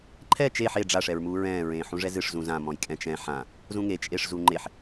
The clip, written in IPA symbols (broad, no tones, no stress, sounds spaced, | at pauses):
ǃʰ ɛ t͡ʃ e ħ e ɖ͡ʐ a ʂ ɛ ɹ m uː ɹ ɛ̃ː ɹ ẽː ħ ũ ʐ ɛ z ɨ ʂ z ũ z ã m ɔ̃ j kʼ ɛ̃ t͡ʃ ɛ̃ ħ ã | z ũ ŋ e t͡ʃʼ e ʂ z uː ŋ͡ǃ e ħ